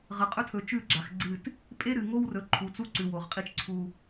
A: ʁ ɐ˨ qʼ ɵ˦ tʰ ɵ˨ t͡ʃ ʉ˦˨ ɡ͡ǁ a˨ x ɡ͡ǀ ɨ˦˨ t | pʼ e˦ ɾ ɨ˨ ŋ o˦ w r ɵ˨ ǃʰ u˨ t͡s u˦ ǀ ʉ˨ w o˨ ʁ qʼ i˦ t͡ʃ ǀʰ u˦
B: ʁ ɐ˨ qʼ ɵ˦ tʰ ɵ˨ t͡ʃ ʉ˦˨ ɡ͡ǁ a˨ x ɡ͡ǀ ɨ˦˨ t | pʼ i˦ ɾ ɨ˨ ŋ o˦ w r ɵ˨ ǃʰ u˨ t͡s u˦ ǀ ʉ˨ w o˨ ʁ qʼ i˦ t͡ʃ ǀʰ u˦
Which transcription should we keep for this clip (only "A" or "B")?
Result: A